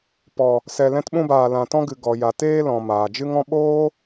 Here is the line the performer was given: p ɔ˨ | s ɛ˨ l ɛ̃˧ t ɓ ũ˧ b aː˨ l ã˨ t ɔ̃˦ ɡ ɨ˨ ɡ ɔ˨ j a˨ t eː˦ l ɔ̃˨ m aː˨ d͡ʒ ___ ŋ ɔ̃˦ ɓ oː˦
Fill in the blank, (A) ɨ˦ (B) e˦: A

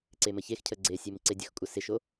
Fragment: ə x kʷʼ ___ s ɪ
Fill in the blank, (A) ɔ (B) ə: B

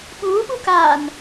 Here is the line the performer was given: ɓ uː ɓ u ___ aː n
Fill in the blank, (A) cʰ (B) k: B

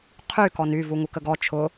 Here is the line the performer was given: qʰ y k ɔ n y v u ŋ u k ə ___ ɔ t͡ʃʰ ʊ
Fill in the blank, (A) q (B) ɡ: B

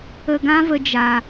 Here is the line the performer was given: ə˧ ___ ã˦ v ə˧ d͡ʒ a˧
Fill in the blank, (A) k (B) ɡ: B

